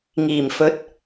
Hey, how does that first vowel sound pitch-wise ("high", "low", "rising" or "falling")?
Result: low